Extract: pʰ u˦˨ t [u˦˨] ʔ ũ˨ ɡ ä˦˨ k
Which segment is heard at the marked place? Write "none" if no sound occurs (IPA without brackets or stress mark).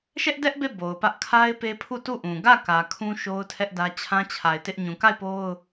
u˦˨